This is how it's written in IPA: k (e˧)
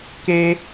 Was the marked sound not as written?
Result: no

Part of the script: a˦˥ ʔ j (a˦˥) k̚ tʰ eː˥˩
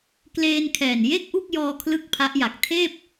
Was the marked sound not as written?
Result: yes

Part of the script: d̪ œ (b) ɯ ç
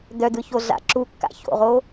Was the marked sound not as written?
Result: yes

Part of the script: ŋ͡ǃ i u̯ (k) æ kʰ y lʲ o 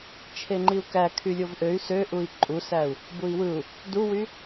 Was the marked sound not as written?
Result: no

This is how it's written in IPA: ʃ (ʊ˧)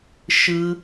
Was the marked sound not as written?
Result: yes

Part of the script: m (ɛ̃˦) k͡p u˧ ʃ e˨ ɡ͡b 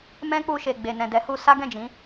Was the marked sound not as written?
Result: no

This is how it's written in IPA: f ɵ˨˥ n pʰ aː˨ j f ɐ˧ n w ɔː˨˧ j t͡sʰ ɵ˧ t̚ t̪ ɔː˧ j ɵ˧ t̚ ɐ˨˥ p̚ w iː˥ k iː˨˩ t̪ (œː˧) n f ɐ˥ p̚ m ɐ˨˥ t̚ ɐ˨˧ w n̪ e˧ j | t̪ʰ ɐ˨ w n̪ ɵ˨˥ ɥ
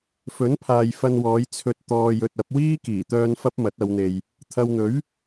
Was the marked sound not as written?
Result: no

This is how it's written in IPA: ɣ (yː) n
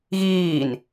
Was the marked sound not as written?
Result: yes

